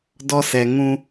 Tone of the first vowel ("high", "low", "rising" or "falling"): high